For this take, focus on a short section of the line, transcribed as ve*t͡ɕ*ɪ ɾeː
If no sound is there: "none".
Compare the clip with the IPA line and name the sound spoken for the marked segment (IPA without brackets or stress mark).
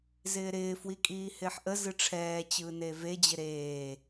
d͡ʑ